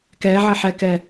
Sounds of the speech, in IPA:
k ɛ ʕ ə ħ ɛ k ɛ

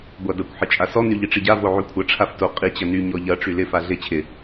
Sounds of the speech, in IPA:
ɡʷ a d ɐ kʷ ħ ɪ t͡ʃʼ a s ɔ n y ʎ i ʈ͡ʂ i ɟ a v o ʕ y kʷʰ ɐ ʈ͡ʂʰ a f t o qʼ i t͡ɕ ɐ n y ɲ ɔ ʎ ɐ ʈ͡ʂ y l ɪ f a ɮ ɪ t͡ɕʰ ɪ

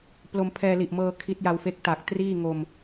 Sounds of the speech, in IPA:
p l o˧ m pʰ ɛː˧ l i˨˩ ʔ m ɤː˧ kʰ i˦˥ t̚ j a˧ w f e˦˥ k̚ t a˨˩ k̚ t r iː˥˩ ŋ o˧ m

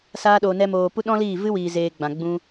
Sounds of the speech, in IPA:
s aː˧ ɗ oː˨ n ɛ˧ m oː˨ p u˦ ɗ ɔ̃˦ l iː˦˨ v ɨ˦ w iː˨ z eː˧ ɡ͡b ã˨ ɡ͡b ũ˧

